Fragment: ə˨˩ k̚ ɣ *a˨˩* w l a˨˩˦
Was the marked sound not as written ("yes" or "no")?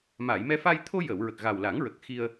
no